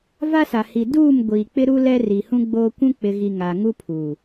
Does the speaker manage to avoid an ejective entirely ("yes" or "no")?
yes